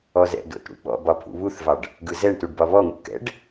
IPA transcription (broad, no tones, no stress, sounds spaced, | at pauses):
ɔ z ɛ̰ d o̰ t ɽ ṵ ɓ ɔ̰ b ɒ pʰ ṵ β u θ v ɑ ɖ | ɡ ɯ z ɛ ɳ t u ɖ b ɒ β ɔ ŋ ṵ k ɛ̰ ɖ